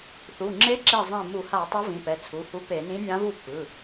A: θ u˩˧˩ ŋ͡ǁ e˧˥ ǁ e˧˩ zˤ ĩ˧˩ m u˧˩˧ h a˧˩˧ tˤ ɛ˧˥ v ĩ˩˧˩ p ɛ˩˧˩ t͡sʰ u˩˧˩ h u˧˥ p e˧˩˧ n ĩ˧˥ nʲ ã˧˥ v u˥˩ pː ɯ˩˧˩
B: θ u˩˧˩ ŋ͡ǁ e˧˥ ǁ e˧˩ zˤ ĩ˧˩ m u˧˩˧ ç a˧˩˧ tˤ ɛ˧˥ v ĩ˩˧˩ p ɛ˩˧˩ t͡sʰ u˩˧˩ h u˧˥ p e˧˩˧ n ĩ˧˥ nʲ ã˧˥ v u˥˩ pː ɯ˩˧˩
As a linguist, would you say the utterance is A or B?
A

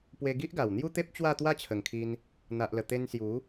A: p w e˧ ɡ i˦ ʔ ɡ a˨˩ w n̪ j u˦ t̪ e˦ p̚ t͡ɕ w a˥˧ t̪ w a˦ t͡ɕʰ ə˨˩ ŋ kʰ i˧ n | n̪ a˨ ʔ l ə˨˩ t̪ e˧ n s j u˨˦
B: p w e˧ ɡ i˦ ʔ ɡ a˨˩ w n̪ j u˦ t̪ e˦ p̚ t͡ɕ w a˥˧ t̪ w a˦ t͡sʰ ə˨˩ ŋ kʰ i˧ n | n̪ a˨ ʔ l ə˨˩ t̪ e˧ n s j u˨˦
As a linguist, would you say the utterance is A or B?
A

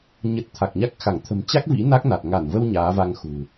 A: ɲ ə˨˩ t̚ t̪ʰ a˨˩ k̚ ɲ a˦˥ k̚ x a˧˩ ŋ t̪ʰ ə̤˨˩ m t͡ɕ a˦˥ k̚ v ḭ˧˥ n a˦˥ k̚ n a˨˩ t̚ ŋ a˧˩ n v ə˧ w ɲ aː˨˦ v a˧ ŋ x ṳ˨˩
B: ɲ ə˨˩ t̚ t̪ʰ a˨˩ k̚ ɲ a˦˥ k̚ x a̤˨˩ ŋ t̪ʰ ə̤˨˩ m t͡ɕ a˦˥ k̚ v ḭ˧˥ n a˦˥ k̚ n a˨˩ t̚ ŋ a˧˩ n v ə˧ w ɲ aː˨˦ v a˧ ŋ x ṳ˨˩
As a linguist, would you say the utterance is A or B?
A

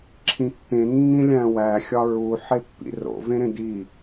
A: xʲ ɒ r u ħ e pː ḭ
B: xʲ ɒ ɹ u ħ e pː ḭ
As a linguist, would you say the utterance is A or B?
B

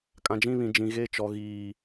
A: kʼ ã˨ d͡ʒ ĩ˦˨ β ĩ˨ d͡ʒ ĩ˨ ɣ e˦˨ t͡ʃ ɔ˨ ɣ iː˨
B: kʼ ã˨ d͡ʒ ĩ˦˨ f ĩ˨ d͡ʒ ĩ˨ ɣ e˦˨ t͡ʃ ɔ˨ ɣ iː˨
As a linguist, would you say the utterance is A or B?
A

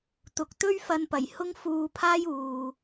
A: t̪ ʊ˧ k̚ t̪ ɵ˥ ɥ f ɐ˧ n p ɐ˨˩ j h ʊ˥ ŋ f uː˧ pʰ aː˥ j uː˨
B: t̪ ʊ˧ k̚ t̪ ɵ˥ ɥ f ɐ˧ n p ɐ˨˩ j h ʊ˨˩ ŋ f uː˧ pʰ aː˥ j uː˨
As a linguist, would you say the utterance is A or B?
A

